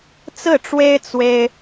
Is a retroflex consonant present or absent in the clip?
present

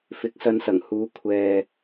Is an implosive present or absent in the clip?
absent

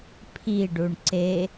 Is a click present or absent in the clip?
present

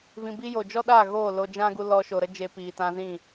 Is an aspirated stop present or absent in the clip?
absent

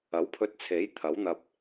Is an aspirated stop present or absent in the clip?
present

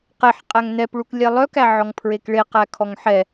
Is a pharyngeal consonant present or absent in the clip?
present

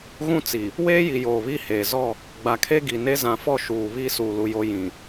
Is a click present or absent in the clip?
absent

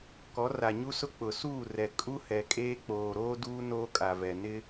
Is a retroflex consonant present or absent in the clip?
absent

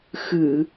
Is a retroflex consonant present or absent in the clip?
absent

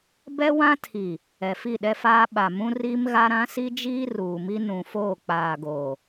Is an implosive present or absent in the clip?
present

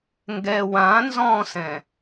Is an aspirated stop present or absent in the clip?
absent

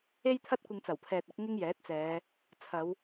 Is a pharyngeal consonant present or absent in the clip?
absent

